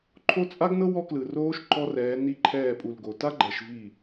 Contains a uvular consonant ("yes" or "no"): no